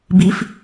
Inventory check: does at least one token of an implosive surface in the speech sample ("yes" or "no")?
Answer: no